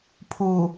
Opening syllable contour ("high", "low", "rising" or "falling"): low